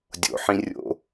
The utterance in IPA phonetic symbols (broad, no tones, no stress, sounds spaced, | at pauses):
dʲ o̰ ħ ĩ rʲ o̰